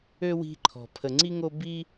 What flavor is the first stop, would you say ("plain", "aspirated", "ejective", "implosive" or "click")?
click